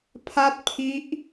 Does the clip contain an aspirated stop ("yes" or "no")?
yes